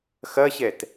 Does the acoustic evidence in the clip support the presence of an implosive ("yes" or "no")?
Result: no